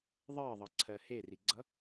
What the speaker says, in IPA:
ðˤ ɜ ðˤ ʌ ǀʰ ɜ h e r i ɡ͡ǀ ʌ

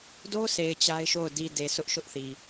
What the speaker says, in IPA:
d o˦ s e˨ ɪ̯ t͡ɕ a˦ ɪ̯ ʃ o˦˨ ʊ̯ d i˨ d e˨ s ʊ˦ ʔ ʃ ʊ˦ ʔ θ i˨

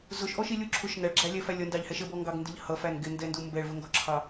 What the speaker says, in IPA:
z ʊ ʃ ʔ ɔ ʃ i lʲ u ǁʰ ʊ ʃ n æ ɭ ɡ͡ǁ æ lʲ ɛ f æ lʲ ʌ n d ɑ ʎ h ɛ ʃ ə b ɔ ŋ ɡ ɑ ɡ n d ɪ ʎ h ʌ f æ n ɡ ɪ n d ɛ n d u m b ɛ ɭ v ə ŋ ɡ ɔ ǁʰ ɑ

